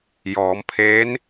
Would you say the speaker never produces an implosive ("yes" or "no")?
yes